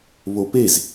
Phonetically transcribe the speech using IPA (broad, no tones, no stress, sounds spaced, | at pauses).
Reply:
β o p e z